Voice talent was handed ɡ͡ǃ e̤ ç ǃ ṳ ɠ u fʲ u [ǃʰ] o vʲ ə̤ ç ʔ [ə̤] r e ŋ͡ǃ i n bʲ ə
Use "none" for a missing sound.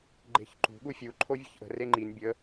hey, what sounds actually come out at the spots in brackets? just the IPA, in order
ǃʰ, ə̤

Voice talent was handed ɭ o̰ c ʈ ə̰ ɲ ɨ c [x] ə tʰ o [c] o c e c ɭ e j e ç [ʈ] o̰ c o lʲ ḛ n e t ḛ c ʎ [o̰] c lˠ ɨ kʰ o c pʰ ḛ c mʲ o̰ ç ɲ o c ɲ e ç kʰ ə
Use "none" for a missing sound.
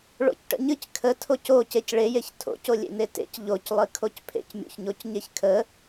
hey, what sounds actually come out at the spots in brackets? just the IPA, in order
kʰ, c, tʰ, o

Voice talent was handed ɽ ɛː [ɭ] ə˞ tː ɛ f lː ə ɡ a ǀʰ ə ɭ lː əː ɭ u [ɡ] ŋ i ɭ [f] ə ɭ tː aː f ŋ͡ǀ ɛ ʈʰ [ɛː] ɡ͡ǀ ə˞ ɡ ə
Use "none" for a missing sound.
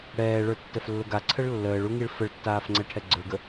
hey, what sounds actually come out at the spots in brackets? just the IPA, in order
ɭ, none, f, ɛ

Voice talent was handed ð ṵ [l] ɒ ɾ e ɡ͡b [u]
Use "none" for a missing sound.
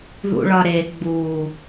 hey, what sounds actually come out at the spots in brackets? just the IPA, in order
ɭ, u

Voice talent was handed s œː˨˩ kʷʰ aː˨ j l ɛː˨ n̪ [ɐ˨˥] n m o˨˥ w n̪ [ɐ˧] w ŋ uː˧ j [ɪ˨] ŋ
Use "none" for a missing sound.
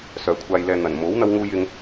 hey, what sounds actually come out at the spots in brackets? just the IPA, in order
ɐ˨˩, ɐ˧, ɪ˧

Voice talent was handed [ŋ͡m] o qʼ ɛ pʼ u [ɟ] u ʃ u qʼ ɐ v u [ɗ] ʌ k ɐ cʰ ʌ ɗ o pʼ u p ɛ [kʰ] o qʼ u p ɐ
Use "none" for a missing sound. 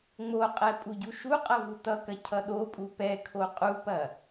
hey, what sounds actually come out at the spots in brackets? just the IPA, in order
ŋ͡m, ɟ, t, kʰ

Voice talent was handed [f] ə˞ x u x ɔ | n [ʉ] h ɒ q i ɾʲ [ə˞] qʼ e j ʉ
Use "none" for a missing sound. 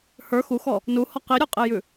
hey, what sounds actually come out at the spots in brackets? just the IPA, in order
h, u, ə˞

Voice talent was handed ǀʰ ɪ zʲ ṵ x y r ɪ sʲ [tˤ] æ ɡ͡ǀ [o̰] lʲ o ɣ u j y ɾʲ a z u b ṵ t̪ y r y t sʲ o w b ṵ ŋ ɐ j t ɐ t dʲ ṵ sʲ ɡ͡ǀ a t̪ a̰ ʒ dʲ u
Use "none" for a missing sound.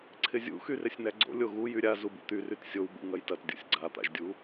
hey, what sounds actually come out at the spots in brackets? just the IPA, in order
n̪, o̰

